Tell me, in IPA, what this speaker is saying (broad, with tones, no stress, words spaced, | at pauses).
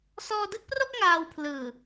sɔː˧dɯ˥˩k̚pro˥˩k̚ ŋaː˧wpʰlɯː˨˩